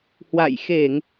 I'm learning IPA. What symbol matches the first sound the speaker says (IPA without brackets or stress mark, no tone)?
h